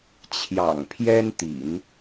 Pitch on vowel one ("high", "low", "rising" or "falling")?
low